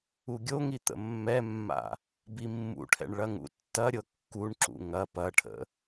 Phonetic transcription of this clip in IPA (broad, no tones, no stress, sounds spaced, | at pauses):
u ɡʲ o ŋ i t̪ ə̰ mː ɛ mː a̰ | b i mː ṵ ʈʰ ɛ̰ ɳ ɭ ɐ ŋ ṵ tː ɐ ɾʲ ɤ kː u ɳ ǁ ṵ ŋ ɐ p ɐ ʈʰ ə̰